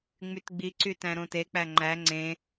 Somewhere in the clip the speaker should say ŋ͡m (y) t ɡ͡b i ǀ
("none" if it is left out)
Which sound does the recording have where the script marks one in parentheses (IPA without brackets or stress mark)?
y